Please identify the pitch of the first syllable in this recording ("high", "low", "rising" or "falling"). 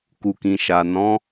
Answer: low